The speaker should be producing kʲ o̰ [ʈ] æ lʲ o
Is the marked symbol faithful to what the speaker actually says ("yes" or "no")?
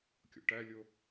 yes